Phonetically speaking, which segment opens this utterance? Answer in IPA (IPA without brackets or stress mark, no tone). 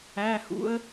æː